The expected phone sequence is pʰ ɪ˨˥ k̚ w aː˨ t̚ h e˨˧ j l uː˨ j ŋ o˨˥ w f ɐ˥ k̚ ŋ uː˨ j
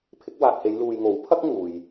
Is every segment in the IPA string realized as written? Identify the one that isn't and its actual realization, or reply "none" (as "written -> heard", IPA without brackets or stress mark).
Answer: f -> pʰ